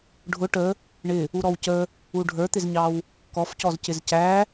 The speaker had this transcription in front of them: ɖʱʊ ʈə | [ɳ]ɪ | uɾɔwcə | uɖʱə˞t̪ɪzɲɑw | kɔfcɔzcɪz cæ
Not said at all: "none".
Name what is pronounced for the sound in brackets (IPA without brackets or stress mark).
ɳ